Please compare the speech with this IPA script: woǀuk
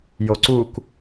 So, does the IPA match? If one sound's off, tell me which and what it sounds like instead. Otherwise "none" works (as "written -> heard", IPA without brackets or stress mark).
w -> j